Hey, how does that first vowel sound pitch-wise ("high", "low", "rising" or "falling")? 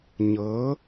rising